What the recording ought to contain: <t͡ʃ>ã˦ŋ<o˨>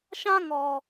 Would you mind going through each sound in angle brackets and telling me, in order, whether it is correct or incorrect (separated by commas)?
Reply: incorrect, incorrect